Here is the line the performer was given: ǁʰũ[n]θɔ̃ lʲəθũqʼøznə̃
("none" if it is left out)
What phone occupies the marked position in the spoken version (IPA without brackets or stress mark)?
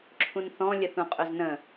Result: n